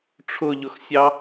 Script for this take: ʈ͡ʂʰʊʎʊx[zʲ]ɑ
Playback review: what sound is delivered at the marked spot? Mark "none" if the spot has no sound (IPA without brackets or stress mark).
sʲ